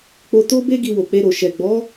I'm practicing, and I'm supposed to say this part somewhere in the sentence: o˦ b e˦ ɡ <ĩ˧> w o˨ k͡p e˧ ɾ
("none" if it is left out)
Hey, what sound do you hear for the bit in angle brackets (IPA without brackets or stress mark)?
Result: i˧